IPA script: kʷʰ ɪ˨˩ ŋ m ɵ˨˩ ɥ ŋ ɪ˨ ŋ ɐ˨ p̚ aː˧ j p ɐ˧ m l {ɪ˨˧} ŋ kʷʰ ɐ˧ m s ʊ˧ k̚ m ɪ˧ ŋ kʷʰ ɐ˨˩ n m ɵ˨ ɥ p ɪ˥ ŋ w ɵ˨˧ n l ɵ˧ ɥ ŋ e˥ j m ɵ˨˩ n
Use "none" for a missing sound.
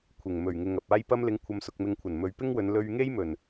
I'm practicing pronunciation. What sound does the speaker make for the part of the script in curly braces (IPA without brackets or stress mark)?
ɪ˨˧